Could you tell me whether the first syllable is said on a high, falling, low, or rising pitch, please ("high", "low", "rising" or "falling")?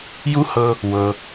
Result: high